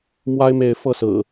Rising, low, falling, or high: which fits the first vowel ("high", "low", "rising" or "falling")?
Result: high